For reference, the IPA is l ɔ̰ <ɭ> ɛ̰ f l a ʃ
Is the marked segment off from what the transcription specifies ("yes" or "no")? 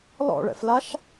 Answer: no